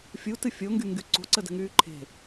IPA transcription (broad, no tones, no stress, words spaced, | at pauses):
fʲutɨ fʲoŋɡyŋɡy ǀo̤ǀədə̤ŋyː ǃʰe̤